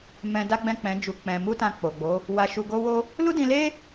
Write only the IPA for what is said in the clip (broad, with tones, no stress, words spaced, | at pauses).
mɛ̃˧da˦ɡ͡bɛ̃˦˨k͡pɛ̃˨˦ d͡ʒu˧k͡pɛ̃˧ mu˦tã˧ k͡po˨ɡ͡bo˨˦ | wa˧ ʃu˧ɡo˦wo˦ | lu˦dĩ˧le˦